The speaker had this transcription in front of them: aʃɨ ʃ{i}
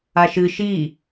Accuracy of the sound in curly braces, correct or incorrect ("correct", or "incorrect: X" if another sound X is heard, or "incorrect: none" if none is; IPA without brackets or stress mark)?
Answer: correct